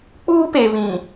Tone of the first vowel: high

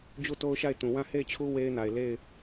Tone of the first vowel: falling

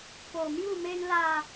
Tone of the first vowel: low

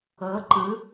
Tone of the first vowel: rising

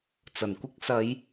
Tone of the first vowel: low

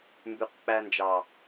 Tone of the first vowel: low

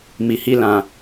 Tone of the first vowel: low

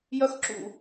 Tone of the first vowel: high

